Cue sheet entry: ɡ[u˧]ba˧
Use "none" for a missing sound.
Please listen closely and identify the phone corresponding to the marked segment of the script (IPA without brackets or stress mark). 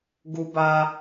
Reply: u˧